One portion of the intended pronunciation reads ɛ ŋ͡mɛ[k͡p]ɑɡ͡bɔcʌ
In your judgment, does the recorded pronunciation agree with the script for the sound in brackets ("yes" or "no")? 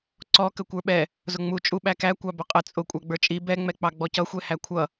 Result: yes